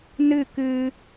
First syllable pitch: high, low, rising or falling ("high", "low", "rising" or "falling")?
falling